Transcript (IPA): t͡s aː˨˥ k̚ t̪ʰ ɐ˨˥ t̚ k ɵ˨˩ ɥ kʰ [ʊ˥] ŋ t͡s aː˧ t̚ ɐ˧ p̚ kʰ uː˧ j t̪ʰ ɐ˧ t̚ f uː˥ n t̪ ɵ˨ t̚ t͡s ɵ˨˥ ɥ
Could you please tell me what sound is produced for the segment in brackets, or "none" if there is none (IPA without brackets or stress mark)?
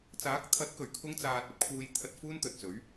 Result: ʊ˥